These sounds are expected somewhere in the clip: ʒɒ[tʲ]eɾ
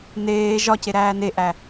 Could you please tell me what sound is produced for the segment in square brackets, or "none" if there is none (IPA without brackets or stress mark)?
c